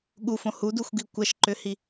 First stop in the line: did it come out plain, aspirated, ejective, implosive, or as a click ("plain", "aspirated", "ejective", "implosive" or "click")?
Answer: implosive